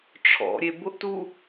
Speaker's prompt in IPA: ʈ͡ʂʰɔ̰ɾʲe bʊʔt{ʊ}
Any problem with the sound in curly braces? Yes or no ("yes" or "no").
yes